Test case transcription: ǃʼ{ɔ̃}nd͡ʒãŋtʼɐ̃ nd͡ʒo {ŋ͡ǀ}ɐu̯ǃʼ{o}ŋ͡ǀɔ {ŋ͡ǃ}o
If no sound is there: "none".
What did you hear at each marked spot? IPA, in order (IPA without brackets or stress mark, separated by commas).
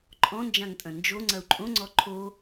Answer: ɔ̃, ŋ͡ǀ, õ, ǃʰ